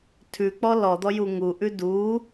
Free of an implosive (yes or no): yes